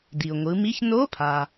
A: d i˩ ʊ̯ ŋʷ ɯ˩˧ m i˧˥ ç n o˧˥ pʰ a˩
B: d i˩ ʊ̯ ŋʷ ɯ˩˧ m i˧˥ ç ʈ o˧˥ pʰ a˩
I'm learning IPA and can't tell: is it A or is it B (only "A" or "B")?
A